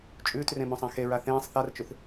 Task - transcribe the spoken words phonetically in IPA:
t͡ʃʼ ʉː t r ẽ m õ sˤ ã x e ɹ a θ ẽː sˤ θ a r t͡ʃ ʉ θ

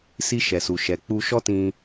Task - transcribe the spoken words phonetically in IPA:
s i˧ ʃ ɛ˨ s u˨ ʃ ɛ˨ k͡p u˧ ʃ ɔ˦ t ĩ˧

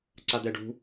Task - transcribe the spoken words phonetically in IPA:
ǀ a d̪ ɛ ɖ ṳ

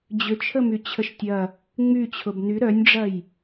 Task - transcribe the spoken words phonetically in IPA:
d͡ʑ ʏ t͡ʃʰ ə m y t͡ɕʰ ə ʃ tʲ ɐ | ŋ͡m y t͡ɕʰ ʊ b n y ɾ œ nʲ ɖ͡ʐ ɐ j

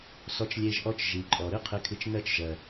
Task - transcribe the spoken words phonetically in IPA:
s ɔ˧ t͡ʃ lʲ e˧ ʒ ʔ ɔ˧ t͡ʃ ʒ i˨ ǃʼ ɔ˨ ɾ ɨ˦ qʰ e˧ kʰ ɨ˧ t͡ʃ n ɜ˧ t͡ʃ ʒ ɜ˨

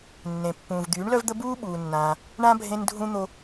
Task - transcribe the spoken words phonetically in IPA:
nː ẽ˩ pː ũː˩ v d̪ yː˩˥ ɳ l œ˥ v d̪ ə˥ b uː˥ ɓ uː˩ nː ãː˩ | ɳ ã˥ bʱ ẽ˧ n dʱ ũ˧ n̪ o˧

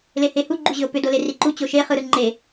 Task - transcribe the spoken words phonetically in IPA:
l e h e h u ɡ͡ǃ u ʑ ʏ o̯ p ʏ d o l e r i ǃ u t͡ɕ o ʃ e χ ɯ ɾ ɯ ŋ͡ǃ e

